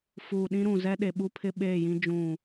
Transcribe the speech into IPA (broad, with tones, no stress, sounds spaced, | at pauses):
f uː˨ ɗ ĩ˦ ɾ ũ˨ z ɛ˦ ɗ e˨ ɓ u˦ pʰ ɪ˦ ɓ eː˦˨ j ĩ˦ d͡ʒ ũ˦˨